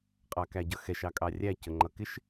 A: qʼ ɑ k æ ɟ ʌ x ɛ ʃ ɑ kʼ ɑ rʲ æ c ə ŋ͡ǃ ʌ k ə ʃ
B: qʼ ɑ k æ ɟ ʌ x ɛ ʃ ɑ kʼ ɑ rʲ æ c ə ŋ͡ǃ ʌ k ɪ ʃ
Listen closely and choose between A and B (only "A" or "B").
B